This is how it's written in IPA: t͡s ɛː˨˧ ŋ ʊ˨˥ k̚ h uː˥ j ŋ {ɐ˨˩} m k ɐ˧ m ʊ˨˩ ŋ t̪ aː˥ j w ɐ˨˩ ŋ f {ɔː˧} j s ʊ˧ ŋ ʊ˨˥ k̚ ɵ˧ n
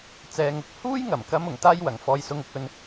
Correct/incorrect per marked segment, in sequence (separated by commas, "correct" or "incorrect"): correct, correct